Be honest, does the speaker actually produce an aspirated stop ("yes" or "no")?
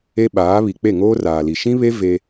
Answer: no